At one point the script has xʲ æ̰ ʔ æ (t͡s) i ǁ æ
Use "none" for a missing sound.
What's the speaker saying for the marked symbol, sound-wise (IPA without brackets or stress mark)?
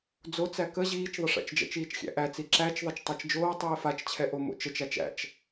t͡s